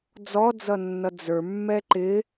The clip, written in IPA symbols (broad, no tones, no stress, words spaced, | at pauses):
d͡zɔd͡zʌnːʌ d͡zə˞ mːɛǃɪ